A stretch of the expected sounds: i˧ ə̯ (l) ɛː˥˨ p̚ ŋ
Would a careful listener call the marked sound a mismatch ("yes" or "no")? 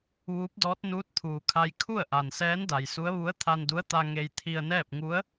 yes